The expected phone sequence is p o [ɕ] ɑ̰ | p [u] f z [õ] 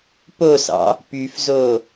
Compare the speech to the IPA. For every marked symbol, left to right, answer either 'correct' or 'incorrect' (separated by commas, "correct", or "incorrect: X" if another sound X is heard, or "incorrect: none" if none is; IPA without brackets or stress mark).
incorrect: s, incorrect: y, incorrect: o